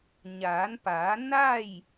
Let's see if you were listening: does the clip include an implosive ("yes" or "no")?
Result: no